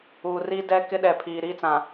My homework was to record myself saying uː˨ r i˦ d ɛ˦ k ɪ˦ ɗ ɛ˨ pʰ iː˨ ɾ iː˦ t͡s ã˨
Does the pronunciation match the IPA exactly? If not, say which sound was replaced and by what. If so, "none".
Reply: none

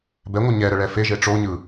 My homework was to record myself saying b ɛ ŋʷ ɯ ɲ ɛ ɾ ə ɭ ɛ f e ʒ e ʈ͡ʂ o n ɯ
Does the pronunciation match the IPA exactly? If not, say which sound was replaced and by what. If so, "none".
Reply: n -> ɲ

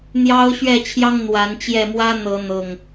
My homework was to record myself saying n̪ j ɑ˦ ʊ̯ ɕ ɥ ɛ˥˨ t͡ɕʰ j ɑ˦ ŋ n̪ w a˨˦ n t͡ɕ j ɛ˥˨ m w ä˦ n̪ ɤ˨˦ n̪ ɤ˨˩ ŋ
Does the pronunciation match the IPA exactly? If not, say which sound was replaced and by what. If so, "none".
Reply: none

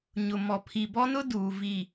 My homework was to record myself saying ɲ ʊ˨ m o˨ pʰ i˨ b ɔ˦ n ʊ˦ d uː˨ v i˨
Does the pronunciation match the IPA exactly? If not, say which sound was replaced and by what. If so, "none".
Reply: o˨ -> ɔ˨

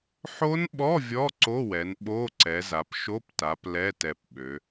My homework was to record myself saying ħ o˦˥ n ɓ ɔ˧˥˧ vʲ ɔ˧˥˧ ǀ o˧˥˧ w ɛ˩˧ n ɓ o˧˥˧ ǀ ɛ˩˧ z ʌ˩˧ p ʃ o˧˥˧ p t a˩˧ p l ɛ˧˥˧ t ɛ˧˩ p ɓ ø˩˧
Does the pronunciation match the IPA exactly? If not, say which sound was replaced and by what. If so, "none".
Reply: ʌ˩˧ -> a˩˧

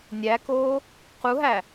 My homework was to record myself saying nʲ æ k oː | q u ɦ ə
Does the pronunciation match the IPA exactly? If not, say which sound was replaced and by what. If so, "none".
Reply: ə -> æ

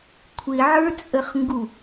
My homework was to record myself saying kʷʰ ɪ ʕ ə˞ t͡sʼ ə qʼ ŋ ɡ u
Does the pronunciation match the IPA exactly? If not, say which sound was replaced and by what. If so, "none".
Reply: qʼ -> χ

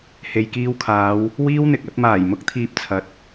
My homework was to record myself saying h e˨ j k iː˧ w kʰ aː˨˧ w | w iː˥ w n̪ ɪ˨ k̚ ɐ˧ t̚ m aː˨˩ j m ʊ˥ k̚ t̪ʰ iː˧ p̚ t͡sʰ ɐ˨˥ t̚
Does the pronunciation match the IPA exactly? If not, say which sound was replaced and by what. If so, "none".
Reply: none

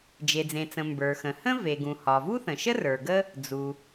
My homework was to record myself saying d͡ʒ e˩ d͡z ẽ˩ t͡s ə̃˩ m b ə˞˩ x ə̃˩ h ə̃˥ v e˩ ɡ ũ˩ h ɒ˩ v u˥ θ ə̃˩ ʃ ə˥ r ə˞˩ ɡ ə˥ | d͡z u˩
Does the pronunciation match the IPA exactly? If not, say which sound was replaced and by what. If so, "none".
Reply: none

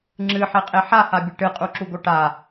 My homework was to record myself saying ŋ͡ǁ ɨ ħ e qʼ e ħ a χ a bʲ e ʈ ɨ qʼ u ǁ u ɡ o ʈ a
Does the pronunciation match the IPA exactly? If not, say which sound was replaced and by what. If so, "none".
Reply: χ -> h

